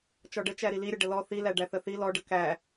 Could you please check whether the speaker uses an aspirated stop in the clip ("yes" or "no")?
no